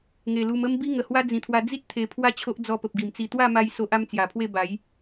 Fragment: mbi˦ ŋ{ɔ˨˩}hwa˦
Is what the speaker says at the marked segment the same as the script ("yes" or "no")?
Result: no